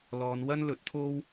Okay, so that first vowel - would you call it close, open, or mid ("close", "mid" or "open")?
mid